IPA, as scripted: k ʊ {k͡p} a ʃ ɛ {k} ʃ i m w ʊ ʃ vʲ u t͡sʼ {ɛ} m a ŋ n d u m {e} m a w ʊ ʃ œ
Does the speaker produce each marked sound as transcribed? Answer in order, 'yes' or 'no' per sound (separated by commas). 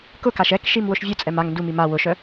no, yes, yes, no